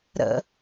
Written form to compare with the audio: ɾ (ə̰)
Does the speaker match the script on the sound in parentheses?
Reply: yes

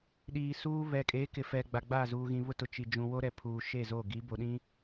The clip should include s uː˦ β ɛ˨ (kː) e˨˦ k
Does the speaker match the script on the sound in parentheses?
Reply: no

